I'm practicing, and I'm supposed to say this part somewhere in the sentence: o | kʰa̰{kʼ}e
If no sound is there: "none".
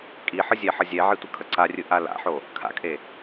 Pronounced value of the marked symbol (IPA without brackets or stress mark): kʼ